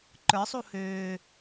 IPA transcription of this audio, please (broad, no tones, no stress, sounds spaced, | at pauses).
ǃ ə˞ sˤ u h øː